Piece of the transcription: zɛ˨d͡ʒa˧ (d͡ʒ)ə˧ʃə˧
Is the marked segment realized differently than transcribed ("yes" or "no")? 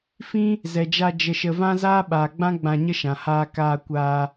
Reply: no